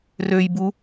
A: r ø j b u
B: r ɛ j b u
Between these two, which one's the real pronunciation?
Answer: A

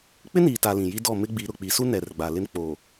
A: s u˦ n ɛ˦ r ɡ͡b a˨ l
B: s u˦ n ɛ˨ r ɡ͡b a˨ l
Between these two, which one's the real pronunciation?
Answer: B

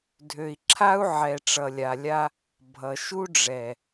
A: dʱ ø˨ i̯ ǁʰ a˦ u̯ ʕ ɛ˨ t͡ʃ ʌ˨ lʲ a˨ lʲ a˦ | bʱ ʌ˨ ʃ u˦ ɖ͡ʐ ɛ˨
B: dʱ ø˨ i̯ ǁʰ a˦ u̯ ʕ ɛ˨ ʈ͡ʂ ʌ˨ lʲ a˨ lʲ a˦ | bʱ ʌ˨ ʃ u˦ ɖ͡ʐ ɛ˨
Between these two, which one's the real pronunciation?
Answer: B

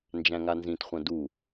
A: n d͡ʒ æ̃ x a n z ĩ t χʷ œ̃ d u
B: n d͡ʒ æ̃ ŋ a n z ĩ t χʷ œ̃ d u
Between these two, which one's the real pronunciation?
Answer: B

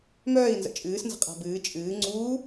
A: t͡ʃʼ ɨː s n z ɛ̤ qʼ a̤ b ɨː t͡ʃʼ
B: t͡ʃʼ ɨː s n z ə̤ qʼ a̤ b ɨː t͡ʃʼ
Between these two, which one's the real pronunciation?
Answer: B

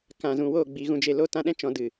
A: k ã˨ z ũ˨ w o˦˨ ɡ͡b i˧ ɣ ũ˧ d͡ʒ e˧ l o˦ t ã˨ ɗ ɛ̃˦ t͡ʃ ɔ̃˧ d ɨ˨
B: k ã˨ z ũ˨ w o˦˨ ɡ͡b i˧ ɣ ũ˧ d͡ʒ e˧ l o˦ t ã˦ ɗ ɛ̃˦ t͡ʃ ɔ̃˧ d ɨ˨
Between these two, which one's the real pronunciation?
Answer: B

